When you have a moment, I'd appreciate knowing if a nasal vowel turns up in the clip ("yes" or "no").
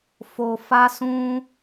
yes